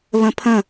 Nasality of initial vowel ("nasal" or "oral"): nasal